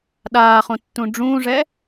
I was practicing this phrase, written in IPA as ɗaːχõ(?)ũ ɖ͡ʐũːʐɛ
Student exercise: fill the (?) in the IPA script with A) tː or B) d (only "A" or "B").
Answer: A